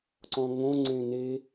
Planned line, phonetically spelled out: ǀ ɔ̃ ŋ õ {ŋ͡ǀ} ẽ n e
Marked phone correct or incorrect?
correct